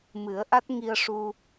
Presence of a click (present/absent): absent